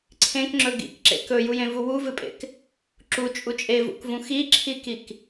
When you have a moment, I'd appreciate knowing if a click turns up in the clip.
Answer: yes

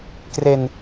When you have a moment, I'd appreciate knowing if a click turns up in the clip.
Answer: no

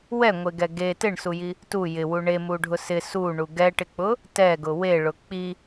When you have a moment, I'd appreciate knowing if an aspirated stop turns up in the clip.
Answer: no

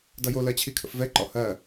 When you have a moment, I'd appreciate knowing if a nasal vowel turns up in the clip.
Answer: no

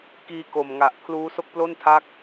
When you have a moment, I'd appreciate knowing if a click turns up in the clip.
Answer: no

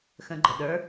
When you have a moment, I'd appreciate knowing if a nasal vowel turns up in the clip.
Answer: yes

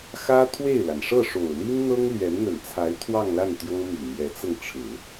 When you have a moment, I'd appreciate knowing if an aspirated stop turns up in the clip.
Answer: yes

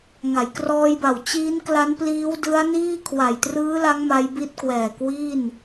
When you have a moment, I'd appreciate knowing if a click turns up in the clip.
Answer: no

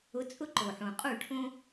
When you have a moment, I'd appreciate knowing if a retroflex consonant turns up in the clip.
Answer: yes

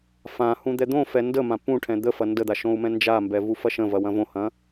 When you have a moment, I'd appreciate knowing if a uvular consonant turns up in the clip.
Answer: no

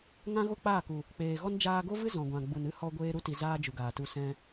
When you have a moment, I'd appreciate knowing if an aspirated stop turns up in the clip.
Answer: no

